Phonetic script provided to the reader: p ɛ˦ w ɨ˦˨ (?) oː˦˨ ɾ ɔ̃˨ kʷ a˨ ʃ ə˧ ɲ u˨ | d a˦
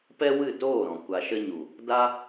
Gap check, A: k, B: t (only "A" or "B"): B